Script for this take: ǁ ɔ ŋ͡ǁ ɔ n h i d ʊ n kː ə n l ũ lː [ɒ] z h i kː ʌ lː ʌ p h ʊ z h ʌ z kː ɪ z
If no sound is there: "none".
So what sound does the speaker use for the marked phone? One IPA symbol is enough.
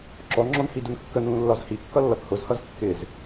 ɒ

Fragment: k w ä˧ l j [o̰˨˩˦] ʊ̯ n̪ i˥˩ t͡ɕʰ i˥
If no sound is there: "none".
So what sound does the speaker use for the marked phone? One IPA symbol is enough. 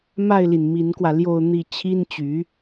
o˥˧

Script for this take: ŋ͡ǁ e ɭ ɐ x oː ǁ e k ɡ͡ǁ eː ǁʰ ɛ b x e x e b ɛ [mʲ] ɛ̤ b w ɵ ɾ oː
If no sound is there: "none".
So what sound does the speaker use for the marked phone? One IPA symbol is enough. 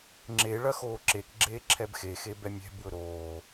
mʲ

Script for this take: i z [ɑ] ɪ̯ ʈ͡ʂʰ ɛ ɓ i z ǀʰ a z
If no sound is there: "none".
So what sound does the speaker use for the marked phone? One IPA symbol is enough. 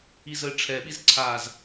ə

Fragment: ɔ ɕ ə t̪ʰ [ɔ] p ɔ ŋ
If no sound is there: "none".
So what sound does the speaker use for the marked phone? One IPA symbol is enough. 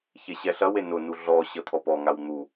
ɔ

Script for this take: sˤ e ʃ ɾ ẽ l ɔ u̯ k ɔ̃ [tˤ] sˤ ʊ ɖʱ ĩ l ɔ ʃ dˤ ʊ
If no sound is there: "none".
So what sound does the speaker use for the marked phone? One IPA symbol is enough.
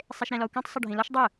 tˤ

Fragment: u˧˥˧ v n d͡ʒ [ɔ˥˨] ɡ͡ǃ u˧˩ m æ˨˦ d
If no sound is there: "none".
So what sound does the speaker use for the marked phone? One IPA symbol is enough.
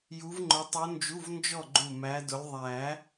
ɔ˥˨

